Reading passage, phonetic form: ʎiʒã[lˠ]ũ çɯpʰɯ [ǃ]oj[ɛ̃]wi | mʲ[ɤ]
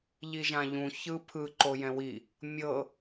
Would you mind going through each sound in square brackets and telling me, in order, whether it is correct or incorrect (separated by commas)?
incorrect, correct, correct, correct